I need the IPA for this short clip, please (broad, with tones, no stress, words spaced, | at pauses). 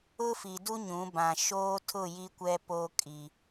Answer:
ʊ˦fi˨du˦ ɲũ˨˦bã˨ ʃoː˦tʰʊ˦˨ ji˦kʷɛ˦ po˦kʼi˨